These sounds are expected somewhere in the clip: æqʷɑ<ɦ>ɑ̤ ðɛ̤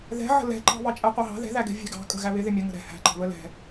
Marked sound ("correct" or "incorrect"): correct